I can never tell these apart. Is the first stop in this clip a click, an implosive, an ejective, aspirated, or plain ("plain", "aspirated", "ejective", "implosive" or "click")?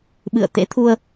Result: implosive